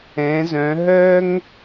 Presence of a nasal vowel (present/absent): present